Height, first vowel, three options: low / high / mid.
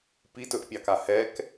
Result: high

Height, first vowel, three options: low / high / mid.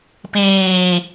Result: high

